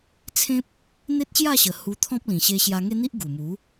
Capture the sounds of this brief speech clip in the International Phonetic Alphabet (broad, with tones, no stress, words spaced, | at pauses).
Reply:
t͡sʰẽ˦p̚ | n̪e˦t̚ɕja˥˧ɕə˨˩ hu˧t̪ʰɔ̃˦p̚ lĩ˨˩ɕe˧ ɕja˧ŋe˦n̪i˦ʔ ɡu˨˩mu˨˦